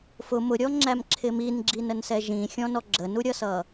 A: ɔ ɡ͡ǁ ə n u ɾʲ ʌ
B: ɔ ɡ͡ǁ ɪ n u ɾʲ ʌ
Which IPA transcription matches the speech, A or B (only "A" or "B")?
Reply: A